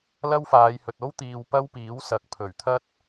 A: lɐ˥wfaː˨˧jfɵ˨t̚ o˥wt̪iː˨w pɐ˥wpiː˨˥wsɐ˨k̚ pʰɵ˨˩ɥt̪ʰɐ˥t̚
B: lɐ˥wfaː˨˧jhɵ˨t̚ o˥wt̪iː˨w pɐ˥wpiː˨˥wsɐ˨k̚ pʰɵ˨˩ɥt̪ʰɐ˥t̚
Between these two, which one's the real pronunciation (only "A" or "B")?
B